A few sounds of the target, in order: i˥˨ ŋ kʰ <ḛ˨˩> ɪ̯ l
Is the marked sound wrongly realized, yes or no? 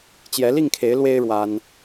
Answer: yes